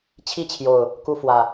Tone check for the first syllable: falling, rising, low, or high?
falling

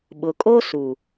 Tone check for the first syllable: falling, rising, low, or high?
low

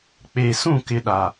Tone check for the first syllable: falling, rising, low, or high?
low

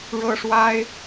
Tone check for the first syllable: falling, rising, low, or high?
high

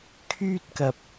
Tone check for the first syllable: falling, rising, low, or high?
high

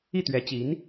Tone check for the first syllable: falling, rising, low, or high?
falling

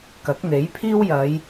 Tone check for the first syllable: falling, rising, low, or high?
rising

